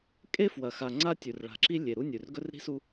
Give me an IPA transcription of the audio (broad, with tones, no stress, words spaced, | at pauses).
kʼe˦fwɐ˨xa˨ ŋ͡ǀa˦tʲʉ˨rɭa̤˨ǁi˦ lʲe˨ɾu˦ nʲʉ˨rɡɵ˦rɾi̤˦su˦